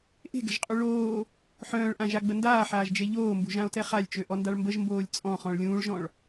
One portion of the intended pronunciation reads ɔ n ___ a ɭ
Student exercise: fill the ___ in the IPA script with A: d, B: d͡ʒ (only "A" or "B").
A